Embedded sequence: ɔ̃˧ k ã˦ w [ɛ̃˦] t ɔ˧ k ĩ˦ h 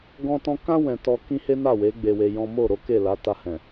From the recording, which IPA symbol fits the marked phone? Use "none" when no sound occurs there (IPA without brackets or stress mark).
ɛ̃˧